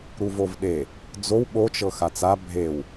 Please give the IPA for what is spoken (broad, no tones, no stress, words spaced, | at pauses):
ɾuvovɗe | d͡zow ɓot͡ʃɤ xat͡sa bʱew